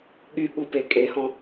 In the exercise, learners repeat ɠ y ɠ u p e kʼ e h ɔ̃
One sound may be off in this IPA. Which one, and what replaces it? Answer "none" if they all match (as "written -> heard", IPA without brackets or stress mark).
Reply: none